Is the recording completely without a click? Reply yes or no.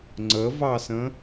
no